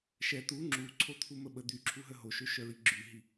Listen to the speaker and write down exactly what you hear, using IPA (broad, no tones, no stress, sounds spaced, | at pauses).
ʃ ɛ t̪ u ŋ͡ǁ u ǀʰ o t̪ʰ u m ə ɓ ə d̪ y ǁʰ u ɦ ə ɦ o ʃ ø ʃ œ ɹ i ɡ͡ǁ y ɦ i